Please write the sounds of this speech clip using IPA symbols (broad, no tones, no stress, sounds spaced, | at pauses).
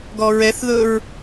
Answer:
ɡ ɔ ɹ ɛ θ ð ɵ ɹ